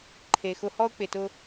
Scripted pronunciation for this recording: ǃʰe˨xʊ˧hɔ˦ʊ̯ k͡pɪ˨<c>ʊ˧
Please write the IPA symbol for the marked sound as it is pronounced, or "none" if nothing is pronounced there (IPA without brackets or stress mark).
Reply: t